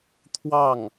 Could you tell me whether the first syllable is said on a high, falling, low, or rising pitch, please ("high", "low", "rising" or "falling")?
falling